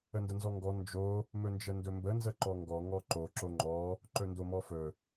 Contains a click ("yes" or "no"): yes